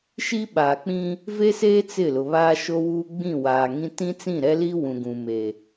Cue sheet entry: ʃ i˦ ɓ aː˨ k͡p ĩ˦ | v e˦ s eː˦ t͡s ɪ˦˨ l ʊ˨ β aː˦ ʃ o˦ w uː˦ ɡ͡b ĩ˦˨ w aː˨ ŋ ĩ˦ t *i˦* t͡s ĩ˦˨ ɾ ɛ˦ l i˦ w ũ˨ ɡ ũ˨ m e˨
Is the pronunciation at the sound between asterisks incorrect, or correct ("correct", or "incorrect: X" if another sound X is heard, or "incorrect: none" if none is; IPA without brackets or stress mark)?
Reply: incorrect: ĩ˦